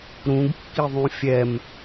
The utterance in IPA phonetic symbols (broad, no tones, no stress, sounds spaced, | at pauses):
ɾ ũ ɡ kː i ðˤ ũ fʲ ɛ m